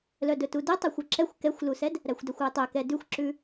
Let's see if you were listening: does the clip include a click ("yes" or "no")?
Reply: yes